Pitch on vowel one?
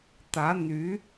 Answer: rising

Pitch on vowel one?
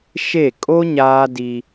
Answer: falling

